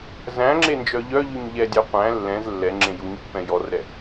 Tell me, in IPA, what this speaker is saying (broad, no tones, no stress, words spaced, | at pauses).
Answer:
zæ̃ŋ͡ǁend͡ʒœ ʎœʎyɲ ʎɛdʲæ qʷæ̃ lːɛ̃z lːɛŋ͡ǁẽ juɲpːɛ̃ jɔrɾɛ